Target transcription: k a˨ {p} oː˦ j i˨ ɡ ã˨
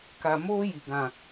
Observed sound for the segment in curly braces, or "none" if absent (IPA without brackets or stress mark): m